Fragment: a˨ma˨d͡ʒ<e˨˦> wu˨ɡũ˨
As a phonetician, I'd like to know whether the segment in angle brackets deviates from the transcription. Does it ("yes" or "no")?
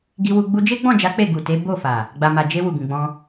yes